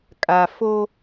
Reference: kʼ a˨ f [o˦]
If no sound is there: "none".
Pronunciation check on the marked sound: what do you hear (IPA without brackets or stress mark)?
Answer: o˦